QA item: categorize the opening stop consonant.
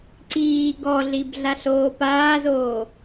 click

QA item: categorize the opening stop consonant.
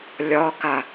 plain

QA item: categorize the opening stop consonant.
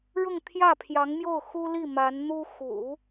aspirated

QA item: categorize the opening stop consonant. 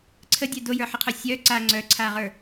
click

